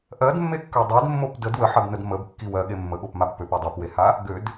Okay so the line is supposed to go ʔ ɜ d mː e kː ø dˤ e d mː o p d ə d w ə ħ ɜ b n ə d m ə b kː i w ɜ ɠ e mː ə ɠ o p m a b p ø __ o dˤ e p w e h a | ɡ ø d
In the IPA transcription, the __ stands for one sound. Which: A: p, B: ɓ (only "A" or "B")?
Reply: A